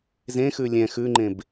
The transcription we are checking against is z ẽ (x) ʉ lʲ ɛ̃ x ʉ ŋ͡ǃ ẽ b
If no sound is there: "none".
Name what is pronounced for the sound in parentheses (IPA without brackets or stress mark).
x